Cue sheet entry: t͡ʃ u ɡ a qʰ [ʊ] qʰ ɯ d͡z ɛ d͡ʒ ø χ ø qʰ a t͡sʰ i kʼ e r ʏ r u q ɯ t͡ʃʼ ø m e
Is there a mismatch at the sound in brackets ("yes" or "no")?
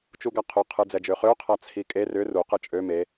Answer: no